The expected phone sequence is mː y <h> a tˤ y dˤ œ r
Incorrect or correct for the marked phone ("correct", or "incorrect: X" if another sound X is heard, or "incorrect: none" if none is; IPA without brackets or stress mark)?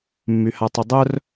correct